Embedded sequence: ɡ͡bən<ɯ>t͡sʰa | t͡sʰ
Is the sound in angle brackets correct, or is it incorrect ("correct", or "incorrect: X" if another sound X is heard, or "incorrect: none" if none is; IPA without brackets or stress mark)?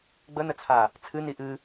incorrect: ə